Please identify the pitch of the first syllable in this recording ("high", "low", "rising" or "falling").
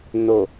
low